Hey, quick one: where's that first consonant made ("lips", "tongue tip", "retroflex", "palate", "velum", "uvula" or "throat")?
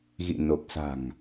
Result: velum